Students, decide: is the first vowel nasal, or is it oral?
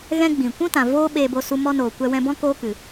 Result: nasal